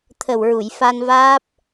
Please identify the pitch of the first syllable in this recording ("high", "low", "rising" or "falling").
low